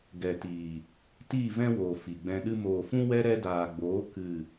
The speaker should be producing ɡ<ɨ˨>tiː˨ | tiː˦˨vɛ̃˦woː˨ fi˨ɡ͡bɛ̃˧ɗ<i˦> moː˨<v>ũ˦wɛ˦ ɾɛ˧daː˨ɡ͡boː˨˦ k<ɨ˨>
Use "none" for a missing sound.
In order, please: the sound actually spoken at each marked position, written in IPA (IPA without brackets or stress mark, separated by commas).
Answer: ɛ˨, ɨ˦, f, ɨ˦˨